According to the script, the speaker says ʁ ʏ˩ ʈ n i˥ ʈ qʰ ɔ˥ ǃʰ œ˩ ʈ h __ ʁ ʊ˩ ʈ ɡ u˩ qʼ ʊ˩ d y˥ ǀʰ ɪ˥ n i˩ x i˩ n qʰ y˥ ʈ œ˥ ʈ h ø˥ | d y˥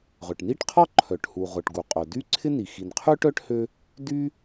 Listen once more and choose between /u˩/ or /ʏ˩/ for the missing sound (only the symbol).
u˩